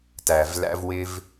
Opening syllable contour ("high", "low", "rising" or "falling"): low